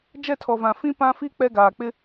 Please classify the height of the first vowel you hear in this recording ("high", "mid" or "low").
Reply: mid